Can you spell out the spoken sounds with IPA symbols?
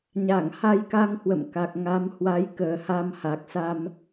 ɲ a˧˩ ŋ h a˧ j k a˧ ŋ h w ə̰˧˨ m k a˨˩ k̚ ŋ a˨˦ m h w a˨˦ j k əː˨˩ h a˧ m h a˨˩ k̚ s a˧ m

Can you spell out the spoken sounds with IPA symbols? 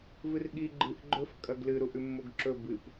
v ɨ r ɠ i ɡ͡ǃ ɨ ʔ ɡ͡ǃ ɵ f kʼ ɐ ɡ l ɨ ɾ u ʔ ʉ mː o ɡ ǁ ɵ b ɨ p

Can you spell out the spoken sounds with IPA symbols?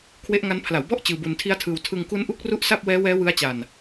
kʰ w e˦˥ ʔ ŋ a˦˥ n pʰ l a˩˦ w b ɔ˥˩ ʔ t͡ɕ ɯː˧ b u˧ n tʰ i˦˥ a̯ tʰ ɯː˧ w tʰ ɯ˧ ŋ k u˦˥ n ʔ u˦˥ k̚ r u˦˥ ʔ s a˥˩ p̚ w ɛː˦˥ w ɛː˦˥ w ɯ˦˥ a̯ t͡ɕ a˧ n

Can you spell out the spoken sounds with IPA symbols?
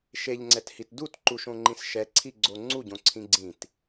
ʃ e ʎ ŋ͡ǀ ɛ t h i t d u t ǃ u ʃ õ ŋ͡ǃ ĩ s ʃ ɛ ǀʰ i ɡ͡ǀ o ŋ͡ǀ u ɟ õ ǀʰ ĩ ɡ͡ǀ ĩ t

